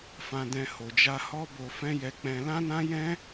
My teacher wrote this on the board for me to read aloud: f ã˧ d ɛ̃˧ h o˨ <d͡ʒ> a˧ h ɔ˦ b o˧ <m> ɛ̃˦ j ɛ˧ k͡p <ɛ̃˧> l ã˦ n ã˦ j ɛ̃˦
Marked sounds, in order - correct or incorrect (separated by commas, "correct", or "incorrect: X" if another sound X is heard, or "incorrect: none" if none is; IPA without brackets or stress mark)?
correct, incorrect: f, correct